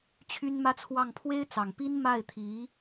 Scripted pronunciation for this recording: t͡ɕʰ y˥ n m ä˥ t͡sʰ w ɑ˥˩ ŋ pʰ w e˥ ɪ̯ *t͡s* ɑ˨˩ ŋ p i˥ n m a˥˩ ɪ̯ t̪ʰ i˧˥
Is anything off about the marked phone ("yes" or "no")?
no